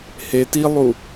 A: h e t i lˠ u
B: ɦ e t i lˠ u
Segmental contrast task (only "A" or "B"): A